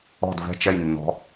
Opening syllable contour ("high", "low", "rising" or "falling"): falling